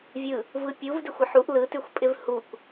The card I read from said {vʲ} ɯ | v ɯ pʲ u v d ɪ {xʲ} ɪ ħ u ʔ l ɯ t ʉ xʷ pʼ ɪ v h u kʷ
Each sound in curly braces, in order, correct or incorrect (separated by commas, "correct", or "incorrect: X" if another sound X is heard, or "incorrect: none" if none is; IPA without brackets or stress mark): correct, incorrect: xʷ